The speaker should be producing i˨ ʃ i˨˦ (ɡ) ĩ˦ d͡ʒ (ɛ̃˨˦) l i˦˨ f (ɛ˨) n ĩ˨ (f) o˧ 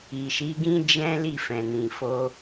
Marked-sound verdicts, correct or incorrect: correct, incorrect: ɛ̃˦, incorrect: ɛ̃˨, correct

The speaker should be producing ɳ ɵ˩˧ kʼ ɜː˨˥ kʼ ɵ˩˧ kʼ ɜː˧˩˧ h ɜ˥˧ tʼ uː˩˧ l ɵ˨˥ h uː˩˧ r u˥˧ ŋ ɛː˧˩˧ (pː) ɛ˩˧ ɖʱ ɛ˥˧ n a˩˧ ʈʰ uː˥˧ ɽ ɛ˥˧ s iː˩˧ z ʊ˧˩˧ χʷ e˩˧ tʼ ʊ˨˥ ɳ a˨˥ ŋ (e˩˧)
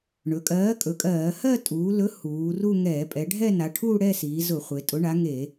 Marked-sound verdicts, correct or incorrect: incorrect: pʼ, incorrect: e˧˩˧

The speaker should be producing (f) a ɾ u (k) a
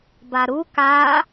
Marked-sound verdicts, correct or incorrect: incorrect: b, correct

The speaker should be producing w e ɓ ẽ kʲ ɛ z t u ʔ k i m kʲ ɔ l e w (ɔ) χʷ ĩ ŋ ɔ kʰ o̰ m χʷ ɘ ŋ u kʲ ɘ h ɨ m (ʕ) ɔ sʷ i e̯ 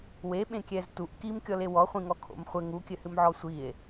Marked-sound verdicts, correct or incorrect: correct, correct

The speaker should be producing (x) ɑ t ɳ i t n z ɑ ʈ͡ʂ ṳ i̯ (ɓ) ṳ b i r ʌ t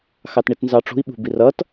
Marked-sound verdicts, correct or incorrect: correct, correct

